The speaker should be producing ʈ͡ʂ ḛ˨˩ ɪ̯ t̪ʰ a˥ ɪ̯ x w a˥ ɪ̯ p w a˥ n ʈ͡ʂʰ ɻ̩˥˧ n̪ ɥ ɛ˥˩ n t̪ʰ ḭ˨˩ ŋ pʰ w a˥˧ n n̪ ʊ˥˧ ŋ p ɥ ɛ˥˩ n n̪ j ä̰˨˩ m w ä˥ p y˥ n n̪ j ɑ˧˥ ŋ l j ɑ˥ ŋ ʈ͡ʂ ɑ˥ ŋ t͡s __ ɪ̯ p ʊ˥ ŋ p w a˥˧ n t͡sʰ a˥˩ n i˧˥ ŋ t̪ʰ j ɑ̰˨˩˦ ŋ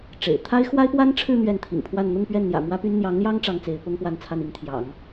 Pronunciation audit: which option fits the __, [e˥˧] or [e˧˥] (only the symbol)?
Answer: e˧˥